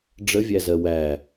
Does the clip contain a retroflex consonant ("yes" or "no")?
yes